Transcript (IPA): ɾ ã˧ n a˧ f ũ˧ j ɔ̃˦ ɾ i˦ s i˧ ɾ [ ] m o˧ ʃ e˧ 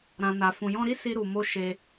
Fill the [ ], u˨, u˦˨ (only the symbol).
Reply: u˨